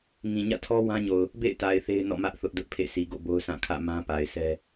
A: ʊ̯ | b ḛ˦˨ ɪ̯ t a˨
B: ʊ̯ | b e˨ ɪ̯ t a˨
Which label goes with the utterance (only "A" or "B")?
A